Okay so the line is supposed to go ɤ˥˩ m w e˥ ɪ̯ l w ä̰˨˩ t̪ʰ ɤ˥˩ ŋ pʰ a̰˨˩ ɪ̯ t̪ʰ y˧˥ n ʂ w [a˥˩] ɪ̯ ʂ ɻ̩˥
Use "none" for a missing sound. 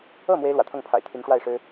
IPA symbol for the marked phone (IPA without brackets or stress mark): a˥˩